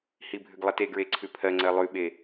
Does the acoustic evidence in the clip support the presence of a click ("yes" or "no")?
yes